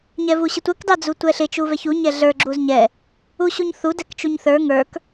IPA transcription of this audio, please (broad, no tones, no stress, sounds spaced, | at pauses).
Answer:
ɲ ɛ v u ɕ ɪ tʷ ɛ k d ɑ d͡z u tʷ ɛ ɬ ɪ t͡ʃ u v ɛ ç u ɲ ɛ ɮ ə˞ ɡ͡ǁ u z ɲ ɛ | u ɕ u ɲ θ u d ɛ k t͡ʃ u ɲ θ ə˞ ŋ ə˞ k